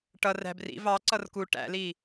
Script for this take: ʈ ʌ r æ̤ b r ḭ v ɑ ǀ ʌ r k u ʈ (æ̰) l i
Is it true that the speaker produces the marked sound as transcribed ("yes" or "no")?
yes